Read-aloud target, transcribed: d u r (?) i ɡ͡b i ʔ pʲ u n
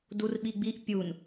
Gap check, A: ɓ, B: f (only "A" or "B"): A